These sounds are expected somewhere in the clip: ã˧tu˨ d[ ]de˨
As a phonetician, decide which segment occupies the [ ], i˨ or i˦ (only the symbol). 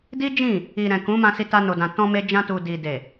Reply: i˨